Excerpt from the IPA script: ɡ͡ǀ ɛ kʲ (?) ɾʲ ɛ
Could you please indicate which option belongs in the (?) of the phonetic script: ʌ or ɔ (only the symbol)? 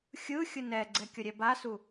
ʌ